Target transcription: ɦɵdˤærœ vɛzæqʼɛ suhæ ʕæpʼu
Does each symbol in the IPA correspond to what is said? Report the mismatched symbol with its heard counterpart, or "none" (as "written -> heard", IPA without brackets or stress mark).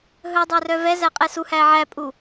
none